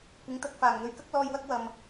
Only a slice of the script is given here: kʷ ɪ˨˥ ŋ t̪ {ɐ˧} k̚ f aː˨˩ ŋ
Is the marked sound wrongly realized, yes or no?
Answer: no